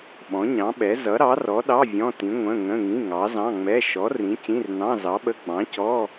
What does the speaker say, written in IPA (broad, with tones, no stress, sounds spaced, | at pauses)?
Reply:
ɓ ɔ̃˨˥ ɲ ɑ̃˨˥ ɓ ɛ˨˥ z ʌ˨˥ ɾ ɑ˨˥ r ɔ˨˥ ɗ ɑ˧˥˧ vʲ ɔ̃˧˥˧ t ĩ˨˥ ŋʷ ə̃˧˥˧ ŋ ə̃˧˥˧ ŋ ĩ˧˥˧ ŋ ɑ˨˥ z ɑ̃˧˥˧ ŋ͡m ɛ˧˥˧ ʃ ɔ˨˥ r ĩ˨˥ c ĩ˧˥˧ r n ɑ̃˧˥˧ z ɑ˨˥ ɓ ə˧˥˧ ɡ͡b ɑ̃˨˥ c ɔ˧˥˧